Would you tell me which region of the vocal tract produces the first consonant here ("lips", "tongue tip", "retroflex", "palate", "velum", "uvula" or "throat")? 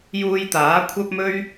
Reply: palate